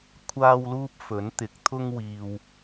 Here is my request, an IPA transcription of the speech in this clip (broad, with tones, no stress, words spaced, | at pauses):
kʷʰaː˥wluː˥p̚ fɵ˨˥nt̪ɪ˨˥k̚t̪ʰʊ˥ŋ wiː˧w